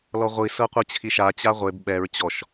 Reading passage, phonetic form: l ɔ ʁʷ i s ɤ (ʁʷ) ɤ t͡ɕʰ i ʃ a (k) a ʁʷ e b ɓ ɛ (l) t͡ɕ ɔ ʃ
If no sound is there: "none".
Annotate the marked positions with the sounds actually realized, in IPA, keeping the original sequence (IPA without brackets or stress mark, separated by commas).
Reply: qʷ, t͡ɕ, ɹ